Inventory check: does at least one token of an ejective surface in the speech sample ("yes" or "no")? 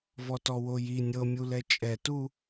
yes